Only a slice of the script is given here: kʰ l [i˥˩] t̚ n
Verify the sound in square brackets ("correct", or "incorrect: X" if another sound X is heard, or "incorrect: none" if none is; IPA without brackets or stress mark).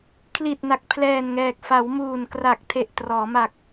incorrect: i˨˩